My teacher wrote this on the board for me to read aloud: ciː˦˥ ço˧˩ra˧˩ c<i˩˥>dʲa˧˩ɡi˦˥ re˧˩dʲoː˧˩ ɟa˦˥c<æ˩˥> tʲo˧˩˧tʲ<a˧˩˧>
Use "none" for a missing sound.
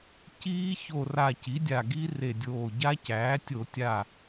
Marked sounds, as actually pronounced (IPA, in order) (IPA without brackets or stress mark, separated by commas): i˩˥, æː˩˥, a˧˩